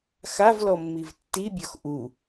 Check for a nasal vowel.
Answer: absent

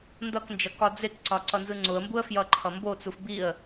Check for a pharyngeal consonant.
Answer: absent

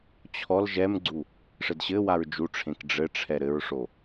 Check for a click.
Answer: present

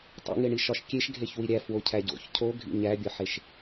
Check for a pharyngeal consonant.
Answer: present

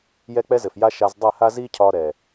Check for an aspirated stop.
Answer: present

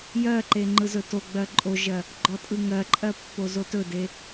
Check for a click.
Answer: present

